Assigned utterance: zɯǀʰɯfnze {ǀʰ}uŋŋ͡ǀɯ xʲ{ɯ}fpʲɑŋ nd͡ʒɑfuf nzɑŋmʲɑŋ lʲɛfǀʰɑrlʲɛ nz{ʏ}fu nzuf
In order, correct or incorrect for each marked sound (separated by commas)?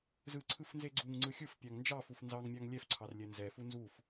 incorrect, correct, incorrect